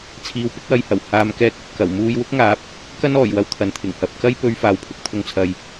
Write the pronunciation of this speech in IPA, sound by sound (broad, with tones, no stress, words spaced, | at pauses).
t͡sʰiː˨wpɪ˥k̚wɐ˧jhɐ˨˩w haː˨˧mkɛː˧k̚ ɐ˨p̚kɐ˨˩w muː˧jwʊ˥k̚ŋaː˨˥p̚ | kɐ˥nɔː˨˩jwɐ˧w t̪ʰɐ˨nt̪ʰɪ˨˩ŋhɐ˨p̚ kɐ˥jpɵ˧ɥ faː˨˧wpʰʊ˨˥k̚t̪ʰʊ˧ŋt͡sʰɐ˨j